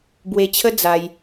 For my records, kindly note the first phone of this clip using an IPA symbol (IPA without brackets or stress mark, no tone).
b